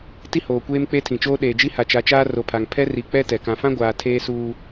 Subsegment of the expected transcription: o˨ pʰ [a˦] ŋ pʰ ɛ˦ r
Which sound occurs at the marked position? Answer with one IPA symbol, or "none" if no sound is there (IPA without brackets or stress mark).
a˨